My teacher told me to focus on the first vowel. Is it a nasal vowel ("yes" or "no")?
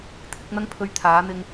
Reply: no